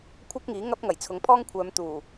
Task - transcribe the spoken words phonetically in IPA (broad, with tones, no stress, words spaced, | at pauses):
kʷʰɐ˥k̚ ŋiː˨˥ ŋɐ˥p̚ ŋɐ˨˩jt͡sʰʊ˨˥ŋpʰɔː˥ŋkʷʰœː˨˧m t̪uː˨˩